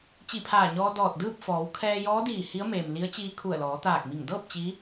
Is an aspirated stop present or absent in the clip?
present